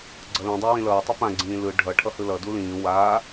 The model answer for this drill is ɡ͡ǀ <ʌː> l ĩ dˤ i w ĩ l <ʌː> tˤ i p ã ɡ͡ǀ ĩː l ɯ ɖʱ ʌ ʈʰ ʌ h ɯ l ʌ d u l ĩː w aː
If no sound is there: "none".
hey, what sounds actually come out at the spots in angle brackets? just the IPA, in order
ʌ, ʌː

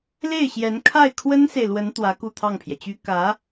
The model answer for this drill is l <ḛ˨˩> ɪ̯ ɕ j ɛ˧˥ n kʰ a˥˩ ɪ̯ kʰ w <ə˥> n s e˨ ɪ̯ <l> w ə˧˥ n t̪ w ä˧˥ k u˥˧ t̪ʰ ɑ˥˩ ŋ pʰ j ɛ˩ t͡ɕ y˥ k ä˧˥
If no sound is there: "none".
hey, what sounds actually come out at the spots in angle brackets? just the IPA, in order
e˥˩, ə˥, l

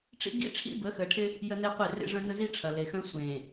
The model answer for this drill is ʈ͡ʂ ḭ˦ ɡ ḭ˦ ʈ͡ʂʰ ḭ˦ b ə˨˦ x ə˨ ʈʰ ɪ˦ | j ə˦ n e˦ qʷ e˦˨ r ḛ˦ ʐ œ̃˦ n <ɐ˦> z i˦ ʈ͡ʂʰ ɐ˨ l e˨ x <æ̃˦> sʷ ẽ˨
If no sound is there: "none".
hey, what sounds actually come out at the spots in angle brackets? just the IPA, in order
ə˦, œ̃˦

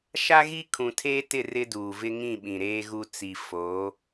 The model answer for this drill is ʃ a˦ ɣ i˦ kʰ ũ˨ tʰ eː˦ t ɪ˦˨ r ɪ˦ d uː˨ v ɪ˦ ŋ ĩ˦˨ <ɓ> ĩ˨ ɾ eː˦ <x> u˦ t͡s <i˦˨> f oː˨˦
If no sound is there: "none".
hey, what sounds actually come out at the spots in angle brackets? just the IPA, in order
ɓ, ɣ, i˨

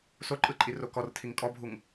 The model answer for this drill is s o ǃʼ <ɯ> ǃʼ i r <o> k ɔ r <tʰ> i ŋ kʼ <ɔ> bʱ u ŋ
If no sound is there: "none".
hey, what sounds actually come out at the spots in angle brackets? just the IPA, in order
ɯ, o, tʰ, ɔ

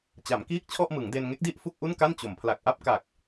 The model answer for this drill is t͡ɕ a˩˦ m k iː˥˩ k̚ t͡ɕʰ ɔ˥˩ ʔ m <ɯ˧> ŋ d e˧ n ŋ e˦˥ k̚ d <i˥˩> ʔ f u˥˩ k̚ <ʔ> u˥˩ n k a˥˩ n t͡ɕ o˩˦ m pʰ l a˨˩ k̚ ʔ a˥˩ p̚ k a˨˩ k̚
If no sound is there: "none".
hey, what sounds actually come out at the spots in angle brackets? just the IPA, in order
ɯ˩˦, i˥˩, ʔ

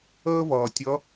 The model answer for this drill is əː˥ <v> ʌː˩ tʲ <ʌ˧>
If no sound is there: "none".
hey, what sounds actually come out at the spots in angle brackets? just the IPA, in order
v, ʌ˧˥

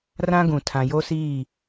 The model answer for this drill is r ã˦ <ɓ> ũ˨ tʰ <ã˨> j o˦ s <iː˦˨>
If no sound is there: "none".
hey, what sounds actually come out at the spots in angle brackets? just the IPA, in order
ɡ, ã˨, iː˦˨

